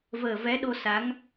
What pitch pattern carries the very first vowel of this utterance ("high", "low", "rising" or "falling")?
low